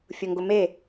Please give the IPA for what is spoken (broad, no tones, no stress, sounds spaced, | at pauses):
fʲ ʊ ŋ ɡ ʊ m e